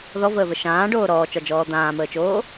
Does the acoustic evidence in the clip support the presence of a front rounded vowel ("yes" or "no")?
no